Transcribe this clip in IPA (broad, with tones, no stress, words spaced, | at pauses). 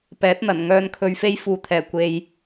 pɛː˨˥t̚n̪ɐ˨˩n ŋœː˨nkʰɵ˨ɥfe˧j fuː˨t̪ʰɛː˨˩ kʷe˧j